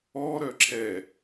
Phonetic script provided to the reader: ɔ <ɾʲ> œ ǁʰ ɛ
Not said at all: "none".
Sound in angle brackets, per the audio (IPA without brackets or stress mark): ɾ